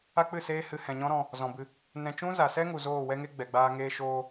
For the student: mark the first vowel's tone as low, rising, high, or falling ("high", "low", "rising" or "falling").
high